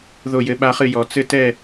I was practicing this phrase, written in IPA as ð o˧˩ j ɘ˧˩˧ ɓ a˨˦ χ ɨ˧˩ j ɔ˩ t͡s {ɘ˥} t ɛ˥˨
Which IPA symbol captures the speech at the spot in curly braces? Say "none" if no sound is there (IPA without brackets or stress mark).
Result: ɘ˥